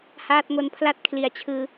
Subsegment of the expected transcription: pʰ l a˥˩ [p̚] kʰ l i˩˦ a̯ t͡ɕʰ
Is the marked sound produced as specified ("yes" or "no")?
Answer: no